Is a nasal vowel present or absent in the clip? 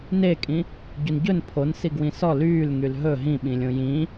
present